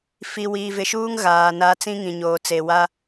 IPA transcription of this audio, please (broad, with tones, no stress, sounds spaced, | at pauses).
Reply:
f i˨ w iː˨ v ɪ˨ ʃ uː˦ ŋ ɣ aː˨ n a˦ t͡s ĩ˦ ŋ ĩ˨ ɲ oː˨ t͡s e˨ w a˦